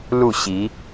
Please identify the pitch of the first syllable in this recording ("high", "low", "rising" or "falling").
falling